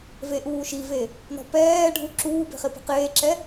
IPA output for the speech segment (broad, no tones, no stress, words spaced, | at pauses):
veʔuːʃive | nɔ̤pɛː ɖʱuǁuːbe̤χɪ pe̤qeːǁɛ